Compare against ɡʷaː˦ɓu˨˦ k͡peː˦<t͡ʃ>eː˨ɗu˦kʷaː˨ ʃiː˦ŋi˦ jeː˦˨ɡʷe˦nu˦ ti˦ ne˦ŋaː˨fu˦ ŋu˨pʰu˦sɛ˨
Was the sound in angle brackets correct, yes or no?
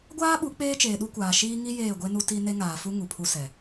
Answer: yes